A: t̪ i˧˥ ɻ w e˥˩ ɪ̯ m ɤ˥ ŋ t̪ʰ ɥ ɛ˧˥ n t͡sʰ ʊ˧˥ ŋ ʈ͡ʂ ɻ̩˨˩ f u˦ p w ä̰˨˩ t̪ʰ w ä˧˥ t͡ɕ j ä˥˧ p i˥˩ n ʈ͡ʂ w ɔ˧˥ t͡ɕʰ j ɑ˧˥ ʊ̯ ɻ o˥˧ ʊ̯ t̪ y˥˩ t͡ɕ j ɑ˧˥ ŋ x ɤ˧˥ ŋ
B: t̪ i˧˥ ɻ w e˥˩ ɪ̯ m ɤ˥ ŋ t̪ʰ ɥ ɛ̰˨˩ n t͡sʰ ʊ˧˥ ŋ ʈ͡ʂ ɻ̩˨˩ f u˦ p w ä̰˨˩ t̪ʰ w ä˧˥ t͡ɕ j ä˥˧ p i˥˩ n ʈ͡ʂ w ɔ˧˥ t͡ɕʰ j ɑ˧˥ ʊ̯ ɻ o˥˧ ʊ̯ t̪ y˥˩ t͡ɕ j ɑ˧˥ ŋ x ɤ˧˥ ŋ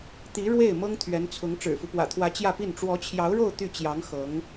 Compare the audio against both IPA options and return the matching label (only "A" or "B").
A